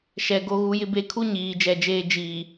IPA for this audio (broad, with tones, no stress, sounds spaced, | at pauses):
ʃ ɛ˨ ɡ o˨˦ ɣ u˨˦ j ɪ˦ b e˨ kʰ u˦ ɲ iː˨˦ d͡ʒ ɛ˨˦ d͡ʒ eː˦ d͡ʒ iː˨